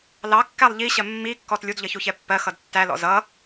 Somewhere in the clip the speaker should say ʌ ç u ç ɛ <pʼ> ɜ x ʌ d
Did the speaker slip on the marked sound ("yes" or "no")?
yes